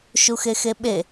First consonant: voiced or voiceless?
voiceless